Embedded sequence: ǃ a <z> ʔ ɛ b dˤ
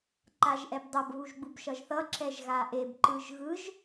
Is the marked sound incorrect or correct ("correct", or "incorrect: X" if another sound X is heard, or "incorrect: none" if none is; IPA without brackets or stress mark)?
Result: incorrect: ʒ